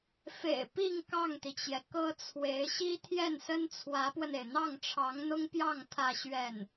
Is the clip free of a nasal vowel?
yes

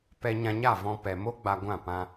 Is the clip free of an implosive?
yes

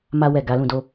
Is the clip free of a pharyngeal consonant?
yes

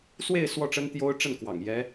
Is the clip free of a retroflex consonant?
no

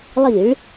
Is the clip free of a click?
yes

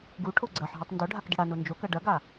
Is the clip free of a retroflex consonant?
no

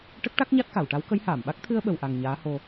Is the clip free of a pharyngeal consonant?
yes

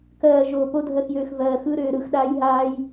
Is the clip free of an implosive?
no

